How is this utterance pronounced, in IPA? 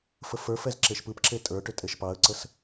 fəfə˞fɛz ǁeʃpɯpǁe tʼə˞ʈʏ tʼeʃpɑə̯ǀəs

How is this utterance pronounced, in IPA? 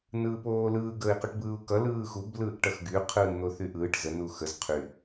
nɯːpoːlɯː ɡəːi̯quʈbɯːu̯kʌ lɯːxub lɯːʔʈʌxɡy qʰɯːnn̪oθyʔɯːʈ zə nuxəz qʰy

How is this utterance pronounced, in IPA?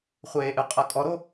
χʷeːʔɨqʼɤ kʼɔɾo

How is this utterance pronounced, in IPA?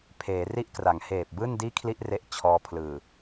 pʰeː˩˦ri˥˩ʔkra˩˦ŋ heː˨˩p̚bɯː˥˩ndiː˥˩ kʰli˥˩ʔre˦˥ʔ t͡ɕʰɔː˧pʰlɯː˨˩

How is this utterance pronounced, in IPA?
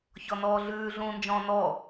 çɔnɔːɮʉː ɮũːnd͡ʒɔ̃ːnɔ

